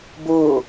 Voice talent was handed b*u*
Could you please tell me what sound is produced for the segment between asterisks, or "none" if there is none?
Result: o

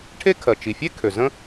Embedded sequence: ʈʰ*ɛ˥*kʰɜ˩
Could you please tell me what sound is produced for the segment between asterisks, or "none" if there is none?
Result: e˥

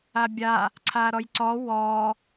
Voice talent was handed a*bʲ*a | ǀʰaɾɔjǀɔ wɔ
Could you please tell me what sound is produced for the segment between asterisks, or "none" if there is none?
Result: bʲ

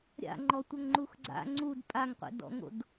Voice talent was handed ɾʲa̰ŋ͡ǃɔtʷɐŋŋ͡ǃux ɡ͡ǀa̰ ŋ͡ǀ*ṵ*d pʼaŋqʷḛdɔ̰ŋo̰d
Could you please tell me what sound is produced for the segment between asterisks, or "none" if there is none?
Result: u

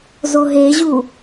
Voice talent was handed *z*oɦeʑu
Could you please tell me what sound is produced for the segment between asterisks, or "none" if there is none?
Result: z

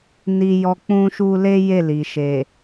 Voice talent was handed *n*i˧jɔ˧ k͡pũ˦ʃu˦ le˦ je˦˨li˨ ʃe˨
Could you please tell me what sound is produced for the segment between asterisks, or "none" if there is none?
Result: n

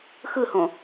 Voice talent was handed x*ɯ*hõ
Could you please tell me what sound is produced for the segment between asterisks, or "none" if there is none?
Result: ɯ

